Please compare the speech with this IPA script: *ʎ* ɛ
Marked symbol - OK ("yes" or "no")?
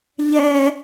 yes